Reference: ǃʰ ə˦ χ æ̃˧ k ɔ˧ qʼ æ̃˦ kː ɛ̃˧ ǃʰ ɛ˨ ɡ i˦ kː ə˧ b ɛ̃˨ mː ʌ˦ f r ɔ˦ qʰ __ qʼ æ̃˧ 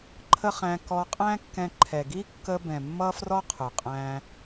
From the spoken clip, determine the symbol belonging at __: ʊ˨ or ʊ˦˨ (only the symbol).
ʊ˨